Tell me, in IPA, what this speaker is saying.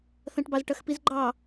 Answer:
θɐ̃ʈbɑzʈɐxpiz ɡ͡ǃɑ

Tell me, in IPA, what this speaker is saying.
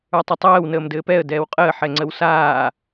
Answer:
ə˞tˤɘtˤɛːw nəːmdɘːpɛə̯ dɛːwqʼəː ħɛŋ͡ǀəwsaː

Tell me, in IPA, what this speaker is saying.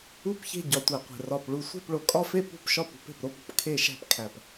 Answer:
u˦˨pçe̤˦˨ ɟɒ˨˩tʷæ˨˩qʷe̤˨˩ rɒ˨˩p ɭu˨˩ sʷe̤˦˨pɭo˨˩kʼɒ˦˨fe˦˨ pṳ˦˨pʃɒ˦˨p ṳ˦˨pe̤˨˩pɾo˦˨pṳ˦˨p kʰe˦˨ʃæ̤˦˨pkʰæ˨˩p

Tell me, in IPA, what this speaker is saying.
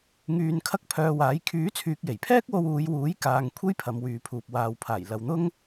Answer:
ŋyː˧n kʰɐ˥k̚pʰœː˧waː˨˥j kʰyː˨˥t͡sʰyː˨k̚je˨˩jpʰɛː˥k̚ wo˧wuː˨˧jwuː˨˥jkaː˨ŋ kʷʰe˥jpʰɐ˨˧mwyː˨pʰuː˨p̚ waː˨w pʰaː˨˩j lɐ˨wn̪ʊ˥ŋ

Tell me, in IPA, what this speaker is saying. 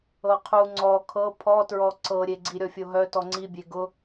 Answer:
ɤqʰu ŋ͡ǀɔ kʰɤ pʰɔtɹɔ ǀɤɾʲeɡ͡ǀi ɾʲɔfʲoɦœ tɔŋ͡ǀibʲe ɡʊ

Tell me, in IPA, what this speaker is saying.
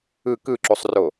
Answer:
ɯ kɯǁusˤro

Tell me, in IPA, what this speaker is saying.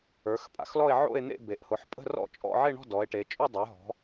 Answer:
ə˞˩˧xpʼa̰˩˧xlɔ˥˧e̯ ʕo̰˥˧e̯n̪ḛ˥˧be˩˧ʔ hʊ˩˧ħpʼə̤˥˧rɔ̰˥˧t͡ʃʼɔ̰˥˧ ʕe˥˧ɳɔ̤˥˧ dɔ˩˧e̯ʈe˩˧ t͡ʃʼo˥˧dˤə˞˩˧ɦɔ̤˩˧

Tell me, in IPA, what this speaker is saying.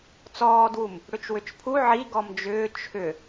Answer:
t͡sɔːdwum | ɽʏt͡ʃwʏt͡ʃpʰu ʕi ɡɔmd͡ʒʏː t͡ʃʰʏ

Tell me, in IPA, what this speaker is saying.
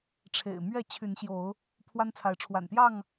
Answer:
ʈ͡ʂʰḛ˨˩ɪ̯ mɥɛ˥˨ t͡ɕʰy˨˦nɕjo˨˦ʊ̯ | pʰwa˦nt͡sʰa˨˦ɪ̯ʈ͡ʂʰwa̰˨˩nt̪jɑ˥˨ŋ

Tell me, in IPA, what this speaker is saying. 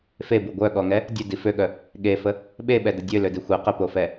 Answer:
febu ɡʷœɠɔŋɛ | dʲødi føɠœ | ɠefə | ɓeɓɛdə dʲølødi xʷɛ qəpofɛ

